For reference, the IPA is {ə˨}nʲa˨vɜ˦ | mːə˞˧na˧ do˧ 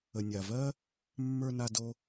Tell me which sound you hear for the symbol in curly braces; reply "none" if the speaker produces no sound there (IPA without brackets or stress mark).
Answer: ə˨